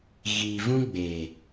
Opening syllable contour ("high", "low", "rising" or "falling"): low